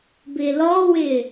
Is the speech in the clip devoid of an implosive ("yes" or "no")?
yes